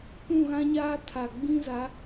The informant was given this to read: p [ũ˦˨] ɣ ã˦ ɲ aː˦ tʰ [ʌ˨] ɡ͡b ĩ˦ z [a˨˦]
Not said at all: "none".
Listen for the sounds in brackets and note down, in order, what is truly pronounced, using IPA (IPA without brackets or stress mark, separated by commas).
ũ˦˨, a˨, a˨˦